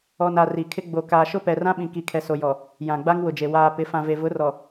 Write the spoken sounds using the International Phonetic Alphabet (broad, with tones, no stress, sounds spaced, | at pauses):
ɔ˨ n a˨ r i˨ kʰ ɪ˦ ɡ͡b o˨ k aː˨ ʃ ʊ˦ p ɛ˨ r ã˦ ɓ ĩ˨ k i˨ kʰ ɛ˨ s o˨ j ɔ˨ | j ã˨ ɡ͡b a˦ ŋ w ʊ˨ d͡ʒ e˨ w aː˨ p ɪ˨˦ f ã˨ v e˨ v ʊ˨˦ r ɔ˨